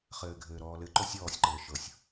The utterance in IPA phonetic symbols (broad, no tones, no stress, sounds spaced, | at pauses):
χ ɘː ɡʱ ɘː ɾ ɔː l ɘ ǃ o sʲ ɔː sʲ ǃ ɘː ʃ ɤ sʲ